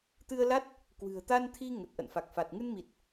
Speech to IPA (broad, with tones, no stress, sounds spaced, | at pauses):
t̪ ɨ˧ ə̯ l a˦˥ t̚ | k w ɨ̤˨˩ ə̯ t̪ a˧ n t̪ʰ i˧ ŋ ə˨˩ t̚ ʔ ə̰˧˨ n f a˨˩ k̚ f a˨˩ t̚ ŋ ɨ˧ n m i˨˩ t̚